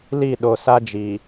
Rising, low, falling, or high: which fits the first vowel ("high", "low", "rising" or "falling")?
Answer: falling